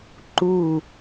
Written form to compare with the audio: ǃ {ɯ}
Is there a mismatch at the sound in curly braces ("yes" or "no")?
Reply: yes